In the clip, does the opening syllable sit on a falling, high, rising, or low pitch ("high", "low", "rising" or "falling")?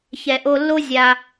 low